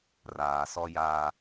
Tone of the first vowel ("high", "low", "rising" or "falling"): low